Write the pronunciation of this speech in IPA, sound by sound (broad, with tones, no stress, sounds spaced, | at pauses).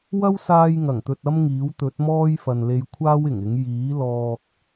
w ɐ˥ w s aː˧ j ŋ ɐ˨˩ ŋ t̪ ɵ˨ t̚ ɐ˥ m ŋ iː˨˥ w t̪ ɵ˨˥ t̚ m ɔː˥ j f ɐ˨ n l e˧ j kʷʰ aː˥ w ɪ˨˩ ŋ ɪ˨˥ ŋ j iː˨˥ l ɔː˧ k̚